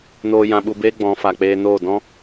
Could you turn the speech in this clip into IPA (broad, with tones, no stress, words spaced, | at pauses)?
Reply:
noː˧ jã˧ɓu˧beː˦ ɡ͡bɔ̃˨˦fa˨k͡peː˧ noː˦˨ dɔ̃˦